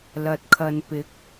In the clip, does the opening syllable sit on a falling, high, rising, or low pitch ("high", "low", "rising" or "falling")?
low